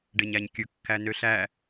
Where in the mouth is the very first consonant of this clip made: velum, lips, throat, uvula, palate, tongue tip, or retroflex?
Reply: retroflex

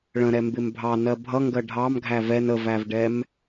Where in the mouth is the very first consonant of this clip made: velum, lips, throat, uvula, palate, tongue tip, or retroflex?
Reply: retroflex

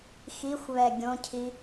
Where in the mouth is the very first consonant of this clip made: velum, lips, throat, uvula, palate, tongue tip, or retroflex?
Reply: velum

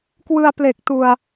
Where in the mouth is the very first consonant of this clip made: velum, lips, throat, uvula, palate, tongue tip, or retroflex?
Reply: velum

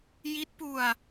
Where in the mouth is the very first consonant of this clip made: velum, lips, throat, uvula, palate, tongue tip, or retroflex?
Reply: palate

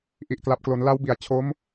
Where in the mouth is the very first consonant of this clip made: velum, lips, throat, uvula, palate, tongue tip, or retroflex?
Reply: throat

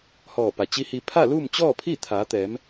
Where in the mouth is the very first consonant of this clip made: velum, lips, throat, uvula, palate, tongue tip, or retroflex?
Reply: throat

